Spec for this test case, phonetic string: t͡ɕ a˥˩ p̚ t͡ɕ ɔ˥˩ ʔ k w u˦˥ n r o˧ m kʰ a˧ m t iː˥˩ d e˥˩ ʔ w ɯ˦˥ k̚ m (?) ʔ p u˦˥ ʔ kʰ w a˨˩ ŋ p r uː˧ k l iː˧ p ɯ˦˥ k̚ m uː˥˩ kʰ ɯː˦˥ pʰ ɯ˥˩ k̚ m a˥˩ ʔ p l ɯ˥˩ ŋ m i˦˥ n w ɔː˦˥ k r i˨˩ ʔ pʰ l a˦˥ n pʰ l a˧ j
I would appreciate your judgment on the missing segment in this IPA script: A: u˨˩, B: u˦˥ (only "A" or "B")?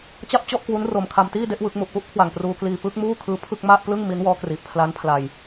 A